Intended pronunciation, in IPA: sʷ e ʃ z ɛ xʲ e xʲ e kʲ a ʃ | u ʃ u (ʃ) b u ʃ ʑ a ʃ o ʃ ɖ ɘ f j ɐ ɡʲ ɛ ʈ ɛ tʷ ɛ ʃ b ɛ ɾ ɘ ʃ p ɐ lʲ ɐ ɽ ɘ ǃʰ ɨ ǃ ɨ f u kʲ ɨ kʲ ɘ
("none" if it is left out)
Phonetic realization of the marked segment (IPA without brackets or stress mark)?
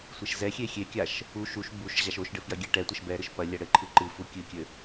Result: ʃ